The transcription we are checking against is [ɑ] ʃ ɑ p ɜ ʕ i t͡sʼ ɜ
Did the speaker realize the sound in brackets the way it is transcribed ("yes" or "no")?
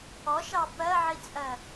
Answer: no